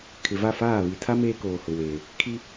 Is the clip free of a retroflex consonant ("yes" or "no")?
yes